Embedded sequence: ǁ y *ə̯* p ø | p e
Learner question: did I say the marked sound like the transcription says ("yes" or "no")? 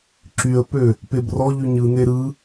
yes